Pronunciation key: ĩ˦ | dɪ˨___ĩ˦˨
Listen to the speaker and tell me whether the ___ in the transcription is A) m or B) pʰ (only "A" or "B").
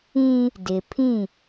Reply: B